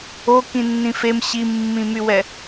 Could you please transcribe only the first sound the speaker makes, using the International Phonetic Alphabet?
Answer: o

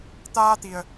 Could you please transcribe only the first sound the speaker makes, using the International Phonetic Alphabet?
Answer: t̪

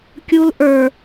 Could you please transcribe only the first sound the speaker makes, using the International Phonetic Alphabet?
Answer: kʲ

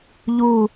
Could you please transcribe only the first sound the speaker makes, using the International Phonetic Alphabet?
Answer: ʎ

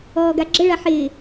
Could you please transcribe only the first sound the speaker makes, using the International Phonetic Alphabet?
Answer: ɔː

